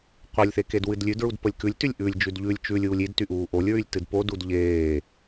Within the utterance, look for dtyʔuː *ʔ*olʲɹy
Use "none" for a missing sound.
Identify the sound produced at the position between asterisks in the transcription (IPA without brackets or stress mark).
ʔ